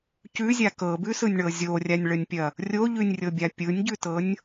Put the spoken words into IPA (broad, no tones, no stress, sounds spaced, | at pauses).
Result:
c ʉ zʲ a k ɤ b ʉ s ɯ nʲ ɳ ɤ zʲ o rʲ a nʲ ɭ ə nʲ pʲ ɐ | rʲ o ʎ ʉ nʲ rʲ ɤ bʲ a pʲ ɯ nʲ ɟ ʉ t ɤ nʲ